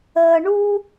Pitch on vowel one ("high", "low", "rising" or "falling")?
low